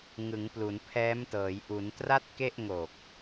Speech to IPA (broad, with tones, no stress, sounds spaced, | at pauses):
ŋ ɯ˩˦ ŋ p l u˩˦ n pʰ ɛː˦˥ m t ɤː˩˦ j ʔ u˩˦ n t r a˥˩ t̚ k e˥˩ ʔ ŋ o˨˩ k̚